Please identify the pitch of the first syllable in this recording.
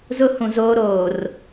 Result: high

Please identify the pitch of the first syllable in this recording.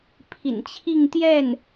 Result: low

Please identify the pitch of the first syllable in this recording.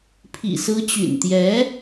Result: low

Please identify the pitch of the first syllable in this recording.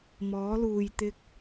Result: rising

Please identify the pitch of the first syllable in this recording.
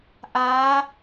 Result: rising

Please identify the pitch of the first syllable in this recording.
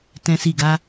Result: high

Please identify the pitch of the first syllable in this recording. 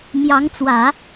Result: rising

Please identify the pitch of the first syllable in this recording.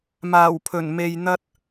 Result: low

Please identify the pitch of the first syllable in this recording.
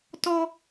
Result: high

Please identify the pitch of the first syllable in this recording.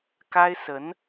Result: high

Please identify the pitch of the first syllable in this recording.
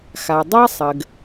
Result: low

